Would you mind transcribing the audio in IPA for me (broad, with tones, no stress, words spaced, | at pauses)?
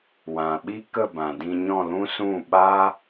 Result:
wã˨ ɓi˦kə˦˨bã˨ dĩ˧ɲɔ̃˦˨lũ˦ sũ˦˨ɓa˦